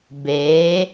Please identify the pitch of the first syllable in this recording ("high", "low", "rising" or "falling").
rising